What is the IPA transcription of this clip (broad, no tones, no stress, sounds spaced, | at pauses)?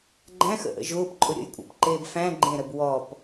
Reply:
ɡ͡ǃ æ̃ x ə̰ ʔ ə̰ ʒ ʊː p ǃʼ ʊ ɾʲ ə̰ j kʷʼ a̰ p ǃ eː b f æ̃ ɡ͡ǃ ẽ ɾ ə b w ɔ p